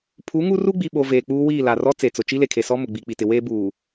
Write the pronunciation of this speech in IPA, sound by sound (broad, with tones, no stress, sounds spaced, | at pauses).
pʰ u˨˦ ŋ u˦ r u˦ ɡ͡b i˨ ɓ o˨ v eː˨ k͡p uː˦ w iː˦˨ l a˨ r ɔ˦ t͡s e˨ t͡s ʊ˨ t͡ʃ i˦ l e˨ kʰ e˨ s ɔ˦ m ʊ˨ ɡ͡b i˨ k͡p i˨ t ɪ˨ w eː˦ b uː˨